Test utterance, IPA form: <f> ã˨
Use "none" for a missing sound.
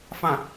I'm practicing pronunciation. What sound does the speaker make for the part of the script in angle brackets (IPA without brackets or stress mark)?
f